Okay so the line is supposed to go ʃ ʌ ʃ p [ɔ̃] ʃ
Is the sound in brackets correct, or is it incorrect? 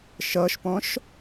correct